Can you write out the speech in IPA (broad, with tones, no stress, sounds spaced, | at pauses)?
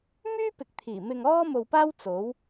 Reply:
m yː˥ p ɪ˨ k̚ t̪ʰ iː˨˩ m ɪ˧ ŋ ɔː˥ m o˧ w p aː˥ w t͡s o˨˥ w